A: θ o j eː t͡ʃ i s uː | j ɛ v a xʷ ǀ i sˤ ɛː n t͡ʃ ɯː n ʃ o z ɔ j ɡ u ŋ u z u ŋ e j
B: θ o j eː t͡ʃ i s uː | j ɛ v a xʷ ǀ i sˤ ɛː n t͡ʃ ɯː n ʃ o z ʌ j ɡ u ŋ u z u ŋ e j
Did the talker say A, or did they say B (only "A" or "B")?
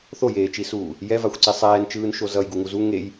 B